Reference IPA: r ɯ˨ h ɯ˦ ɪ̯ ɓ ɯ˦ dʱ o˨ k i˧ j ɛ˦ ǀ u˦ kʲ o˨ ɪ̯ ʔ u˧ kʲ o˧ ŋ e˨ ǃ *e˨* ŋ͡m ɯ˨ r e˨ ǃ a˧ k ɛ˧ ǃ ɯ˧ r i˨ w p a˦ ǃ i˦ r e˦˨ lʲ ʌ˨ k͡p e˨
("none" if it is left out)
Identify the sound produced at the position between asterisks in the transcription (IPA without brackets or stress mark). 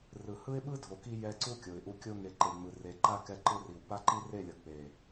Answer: e˨